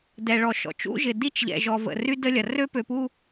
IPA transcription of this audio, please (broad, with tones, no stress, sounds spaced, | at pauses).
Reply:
d ɛ˨ ɭ ɔ˨ ʃ ɔ̰˨ t͡ʃ ṵ˦ ʒ ɪ˨ d i˦ t͡ʃ ʎ ɛ̰˨ ʒ ɔ˨ v ə̰˨ r y˦ d ə˦ lʲ ɐ˨ r ø˦ p ø˨ p u˦